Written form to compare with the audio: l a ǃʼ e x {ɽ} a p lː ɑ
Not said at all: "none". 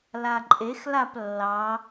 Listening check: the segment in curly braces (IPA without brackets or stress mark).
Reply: l